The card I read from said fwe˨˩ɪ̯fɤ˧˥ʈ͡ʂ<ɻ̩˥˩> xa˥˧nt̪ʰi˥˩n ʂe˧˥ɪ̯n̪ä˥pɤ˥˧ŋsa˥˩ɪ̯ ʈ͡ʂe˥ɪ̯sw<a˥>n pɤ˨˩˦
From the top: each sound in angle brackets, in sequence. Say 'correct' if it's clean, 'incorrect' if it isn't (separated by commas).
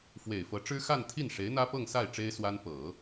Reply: incorrect, correct